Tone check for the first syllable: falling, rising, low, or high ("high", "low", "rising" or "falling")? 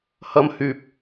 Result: high